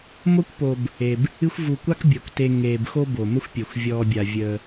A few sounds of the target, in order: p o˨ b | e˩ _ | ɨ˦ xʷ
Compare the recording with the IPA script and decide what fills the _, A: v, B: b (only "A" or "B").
B